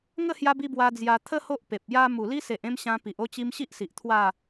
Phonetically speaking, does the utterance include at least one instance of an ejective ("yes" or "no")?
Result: no